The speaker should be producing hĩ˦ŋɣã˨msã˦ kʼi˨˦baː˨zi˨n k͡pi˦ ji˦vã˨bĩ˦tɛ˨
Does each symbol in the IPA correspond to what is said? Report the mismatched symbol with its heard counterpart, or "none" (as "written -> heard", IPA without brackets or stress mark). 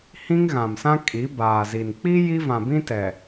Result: none